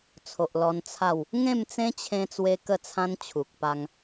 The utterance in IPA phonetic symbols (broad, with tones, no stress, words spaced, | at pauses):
t͡sʰo˨ʔlɔ˧n t͡sʰa˥˧w | ŋẽ˥˧mt͡sẽ˦t͡ɕʰẽ˧ t͡swe˦kə˥˧t͡sʰã˦n t͡ɕʰu˨k̚pa˧ŋ